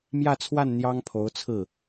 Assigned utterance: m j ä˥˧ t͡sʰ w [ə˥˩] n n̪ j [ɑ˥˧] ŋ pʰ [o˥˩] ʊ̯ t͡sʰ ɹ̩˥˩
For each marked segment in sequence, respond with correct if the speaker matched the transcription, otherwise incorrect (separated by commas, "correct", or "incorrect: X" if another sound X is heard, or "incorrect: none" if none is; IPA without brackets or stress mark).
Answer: incorrect: a˥˩, incorrect: ɑ˥, incorrect: o˧˥